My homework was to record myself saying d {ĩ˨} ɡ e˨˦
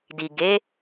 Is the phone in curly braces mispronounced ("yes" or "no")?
yes